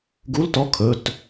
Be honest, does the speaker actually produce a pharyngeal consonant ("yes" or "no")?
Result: no